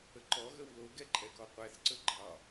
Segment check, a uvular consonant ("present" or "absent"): present